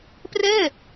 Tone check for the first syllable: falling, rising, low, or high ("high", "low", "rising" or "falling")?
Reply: falling